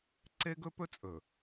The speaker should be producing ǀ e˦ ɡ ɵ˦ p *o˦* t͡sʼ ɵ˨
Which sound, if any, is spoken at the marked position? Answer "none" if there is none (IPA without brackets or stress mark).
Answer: ɵ˦